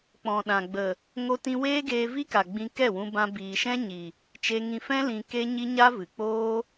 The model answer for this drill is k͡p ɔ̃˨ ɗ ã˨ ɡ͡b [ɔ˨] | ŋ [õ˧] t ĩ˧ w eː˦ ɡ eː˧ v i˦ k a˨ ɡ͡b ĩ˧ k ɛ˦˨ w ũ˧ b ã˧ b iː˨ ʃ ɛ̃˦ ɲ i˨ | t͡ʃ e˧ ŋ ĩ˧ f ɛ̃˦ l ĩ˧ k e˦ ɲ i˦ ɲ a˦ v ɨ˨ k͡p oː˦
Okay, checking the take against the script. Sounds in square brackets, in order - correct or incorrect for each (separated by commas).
incorrect, incorrect